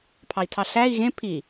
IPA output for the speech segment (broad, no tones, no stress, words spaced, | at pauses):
pʰɑi̯tʰɑɬæi̯ ɣẽ pʰi